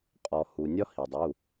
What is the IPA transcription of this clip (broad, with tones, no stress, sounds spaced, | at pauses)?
qʼ ɔ˩ h u˩ nʲ ɒ˦ h i˩ dˤ u˩˧˩